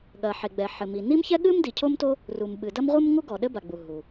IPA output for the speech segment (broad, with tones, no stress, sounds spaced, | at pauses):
ɠ ɐ˩ ħ e˩ ɡ͡b ɛ˩ ħ ɘ˩ m i˩ n i˥ m ç ɛ˥ ɠ ɨ˥ m d i˩ cʰ o˥ m t o˥ | r u˩ m ɓ ɨ˩ d ɐ˥ m ʁʷ ɨ˥ m ŋ u˥ ɡ ɔ˩ ɗ ɘ˥ b a˩ ɡ͡b u˩ ɦ u˩